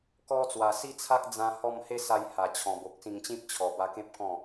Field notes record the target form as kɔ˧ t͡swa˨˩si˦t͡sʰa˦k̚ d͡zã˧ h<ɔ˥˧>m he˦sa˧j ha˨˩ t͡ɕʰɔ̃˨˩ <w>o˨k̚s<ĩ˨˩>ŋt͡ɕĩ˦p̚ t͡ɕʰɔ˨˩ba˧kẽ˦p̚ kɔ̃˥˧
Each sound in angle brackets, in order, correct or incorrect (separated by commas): correct, incorrect, incorrect